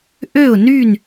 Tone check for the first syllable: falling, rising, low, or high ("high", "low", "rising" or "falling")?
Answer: falling